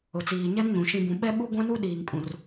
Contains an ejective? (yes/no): yes